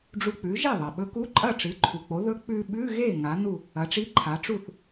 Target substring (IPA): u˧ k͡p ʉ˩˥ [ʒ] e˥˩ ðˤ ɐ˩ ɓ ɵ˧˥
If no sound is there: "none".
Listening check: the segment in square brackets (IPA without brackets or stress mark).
ʒ